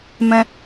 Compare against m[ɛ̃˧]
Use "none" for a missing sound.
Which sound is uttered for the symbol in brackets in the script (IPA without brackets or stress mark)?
ɛ̃˧